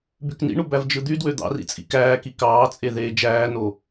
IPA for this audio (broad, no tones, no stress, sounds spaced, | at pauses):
b y k n ḭ ɳ u b æ v d͡ʒ ɯ d̪ y d w ø d̪ ɑ̰ r ḭ t͡sʼ ḭ k æː k i k ɑː t͡sʼ e ð eː d͡ʒ æː n o